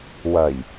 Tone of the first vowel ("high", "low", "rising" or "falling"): low